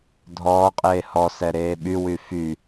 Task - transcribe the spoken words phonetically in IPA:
dʱɔːqʼeː hɔsɛɾeː ɓywy fy

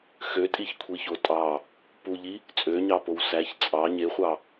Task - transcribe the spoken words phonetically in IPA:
xøtʼiçkʷʰiço tʼɑ | puʎi | t͡sʼøɲɑpow sæç t͡sʼɑ ɲeχʷɑ

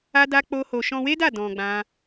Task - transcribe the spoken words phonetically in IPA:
a˦da˦ k͡po˦ho˧ ʃɔ̃˧we˦da˦˨ dɔ̃˧ɡ͡bã˦

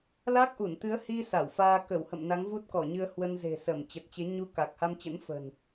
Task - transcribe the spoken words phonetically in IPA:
la˦˥k̚ʔu˧˩nt̪ɨ˨˦ə̯ hi˧ sa˧˩wfaː˧ kə˧˩whə̰˧˨m na˨˦ŋvu˦˥t̚kɔ˧˩ɲɨ˧ə̯ hwə˧n ze̤˨˩sə˧˩mt͡ɕə˨˩t̚t͡ɕe˨˦ ɲu˧ ka˨˩k̚ha˧mt͡ɕə̰˧˥n fə̤˨˩n

